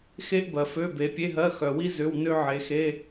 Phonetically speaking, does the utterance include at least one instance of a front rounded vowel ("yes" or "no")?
yes